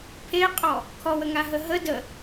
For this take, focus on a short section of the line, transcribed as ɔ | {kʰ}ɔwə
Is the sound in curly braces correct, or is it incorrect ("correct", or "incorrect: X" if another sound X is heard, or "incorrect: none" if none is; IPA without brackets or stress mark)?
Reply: correct